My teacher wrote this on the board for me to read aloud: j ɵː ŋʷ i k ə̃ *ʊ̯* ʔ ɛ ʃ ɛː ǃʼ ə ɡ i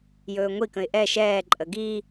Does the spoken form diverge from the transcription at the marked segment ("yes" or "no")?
yes